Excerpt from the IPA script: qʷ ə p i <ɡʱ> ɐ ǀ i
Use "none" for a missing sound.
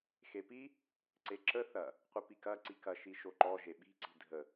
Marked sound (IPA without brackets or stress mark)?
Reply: k